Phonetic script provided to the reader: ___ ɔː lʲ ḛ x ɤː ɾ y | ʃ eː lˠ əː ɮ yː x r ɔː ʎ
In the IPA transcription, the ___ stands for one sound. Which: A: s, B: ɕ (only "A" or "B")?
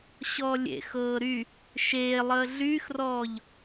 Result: B